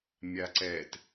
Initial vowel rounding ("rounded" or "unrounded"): unrounded